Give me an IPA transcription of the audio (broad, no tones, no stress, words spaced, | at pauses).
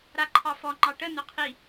ɾaǃʰɑfɔ ŋ͡ǃɑʈə nʊqʰi